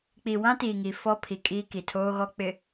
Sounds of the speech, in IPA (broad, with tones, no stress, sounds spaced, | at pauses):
k͡p i˨ w ã˦ t iː˨ ŋ i˨ f ɔ˦ pʰ i˨ kʼ iː˦ k i˨ tʰ oː˦ ɣ ɔ˦ k͡p ɪ˨